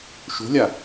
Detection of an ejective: absent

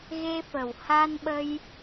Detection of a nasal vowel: absent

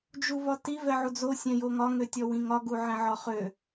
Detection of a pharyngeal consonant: present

